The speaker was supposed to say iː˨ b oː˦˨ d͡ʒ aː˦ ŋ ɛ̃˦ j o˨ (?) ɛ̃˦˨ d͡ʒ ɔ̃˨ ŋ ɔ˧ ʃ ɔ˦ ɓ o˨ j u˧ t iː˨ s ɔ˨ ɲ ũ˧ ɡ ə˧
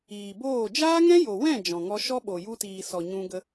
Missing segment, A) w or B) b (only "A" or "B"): A